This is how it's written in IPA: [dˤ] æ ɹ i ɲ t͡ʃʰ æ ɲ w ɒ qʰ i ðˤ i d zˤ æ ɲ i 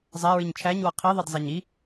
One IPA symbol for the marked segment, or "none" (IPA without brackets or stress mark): zˤ